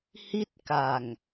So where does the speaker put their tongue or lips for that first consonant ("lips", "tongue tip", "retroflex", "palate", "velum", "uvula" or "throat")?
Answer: throat